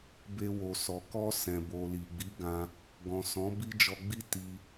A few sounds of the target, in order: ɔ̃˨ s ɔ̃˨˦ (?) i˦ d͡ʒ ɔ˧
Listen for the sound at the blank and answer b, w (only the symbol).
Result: b